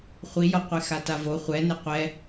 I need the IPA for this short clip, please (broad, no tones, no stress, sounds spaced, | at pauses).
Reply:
χʷ i j ɔ qʷ e x a t a v o χʷ ɛ n e qʷ ɛ